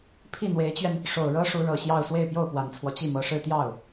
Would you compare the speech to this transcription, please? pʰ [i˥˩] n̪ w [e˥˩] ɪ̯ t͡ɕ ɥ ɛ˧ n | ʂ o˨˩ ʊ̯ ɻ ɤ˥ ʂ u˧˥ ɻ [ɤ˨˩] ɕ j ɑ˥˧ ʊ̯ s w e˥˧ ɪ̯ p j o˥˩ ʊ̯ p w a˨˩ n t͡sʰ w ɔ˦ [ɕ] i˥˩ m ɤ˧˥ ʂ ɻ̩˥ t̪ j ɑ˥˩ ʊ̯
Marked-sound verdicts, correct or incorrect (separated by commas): correct, incorrect, correct, incorrect